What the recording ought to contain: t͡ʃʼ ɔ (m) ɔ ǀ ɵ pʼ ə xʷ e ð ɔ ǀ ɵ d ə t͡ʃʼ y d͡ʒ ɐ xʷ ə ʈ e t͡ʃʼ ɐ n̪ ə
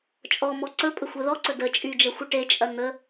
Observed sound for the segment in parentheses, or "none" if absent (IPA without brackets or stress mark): m